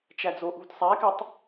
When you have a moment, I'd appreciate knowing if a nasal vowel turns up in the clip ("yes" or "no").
no